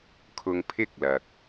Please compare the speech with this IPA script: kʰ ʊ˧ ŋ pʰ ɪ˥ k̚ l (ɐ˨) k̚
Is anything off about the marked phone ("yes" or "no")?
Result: no